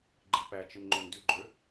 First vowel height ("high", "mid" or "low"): high